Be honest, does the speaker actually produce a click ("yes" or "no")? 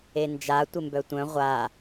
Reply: no